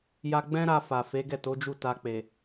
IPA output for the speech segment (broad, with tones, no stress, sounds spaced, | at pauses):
j a˧ ɡ͡b ɛ̃˦ ɾ a˧ f a˨ f e˨˦ ɡ ɛ˦˨ t o˨˦ d͡ʒ u˦˨ t a˧ k͡p e˨